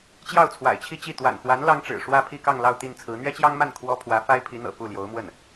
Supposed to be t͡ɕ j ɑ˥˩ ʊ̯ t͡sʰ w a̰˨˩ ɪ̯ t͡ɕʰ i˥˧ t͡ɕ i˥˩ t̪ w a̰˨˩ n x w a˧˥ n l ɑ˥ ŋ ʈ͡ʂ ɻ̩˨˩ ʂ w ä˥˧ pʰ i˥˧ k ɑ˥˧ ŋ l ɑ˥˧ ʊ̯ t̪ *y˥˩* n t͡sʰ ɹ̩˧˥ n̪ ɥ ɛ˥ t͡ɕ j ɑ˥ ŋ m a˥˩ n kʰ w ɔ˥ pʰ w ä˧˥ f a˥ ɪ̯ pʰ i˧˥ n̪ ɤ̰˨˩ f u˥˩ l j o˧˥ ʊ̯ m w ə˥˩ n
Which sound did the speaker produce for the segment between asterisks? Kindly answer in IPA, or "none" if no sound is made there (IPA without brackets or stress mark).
i˥˩